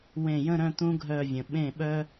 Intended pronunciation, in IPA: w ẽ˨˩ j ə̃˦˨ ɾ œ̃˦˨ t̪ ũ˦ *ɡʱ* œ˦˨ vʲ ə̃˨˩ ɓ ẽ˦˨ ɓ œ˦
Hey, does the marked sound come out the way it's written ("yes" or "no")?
yes